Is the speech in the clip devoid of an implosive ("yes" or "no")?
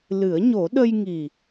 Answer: no